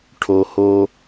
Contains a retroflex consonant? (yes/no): yes